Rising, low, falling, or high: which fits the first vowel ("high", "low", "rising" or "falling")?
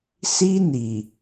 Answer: high